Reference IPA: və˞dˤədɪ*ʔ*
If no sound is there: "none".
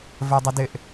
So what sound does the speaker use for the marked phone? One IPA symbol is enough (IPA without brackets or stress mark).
ʔ